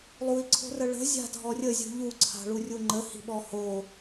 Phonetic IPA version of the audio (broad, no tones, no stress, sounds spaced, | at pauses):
lˠ u i̯ ǀʰ o̤ r ə ɭ ə̤ zʲ a̤ dʱ ɔ rʲ ə zʲ ṳ ʎ u ǀʰ a̤ ɭ u rʲ u ŋ͡ǃ ə h i̤ ɓ ɔ h o